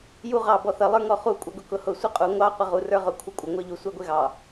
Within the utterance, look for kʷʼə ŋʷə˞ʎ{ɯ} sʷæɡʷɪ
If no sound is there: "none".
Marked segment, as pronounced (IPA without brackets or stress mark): u